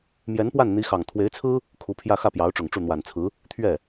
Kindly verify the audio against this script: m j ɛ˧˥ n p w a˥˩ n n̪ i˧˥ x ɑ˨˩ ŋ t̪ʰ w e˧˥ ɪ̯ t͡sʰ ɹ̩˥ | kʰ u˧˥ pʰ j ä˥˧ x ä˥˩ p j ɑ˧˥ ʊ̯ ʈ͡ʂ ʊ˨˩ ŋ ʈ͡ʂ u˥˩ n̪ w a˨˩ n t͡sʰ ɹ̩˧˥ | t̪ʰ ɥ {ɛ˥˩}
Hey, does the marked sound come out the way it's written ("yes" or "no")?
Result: yes